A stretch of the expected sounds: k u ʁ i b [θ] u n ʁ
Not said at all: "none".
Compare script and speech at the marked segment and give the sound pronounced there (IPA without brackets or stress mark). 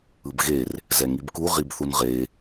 θ